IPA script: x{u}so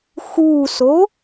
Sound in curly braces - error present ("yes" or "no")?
no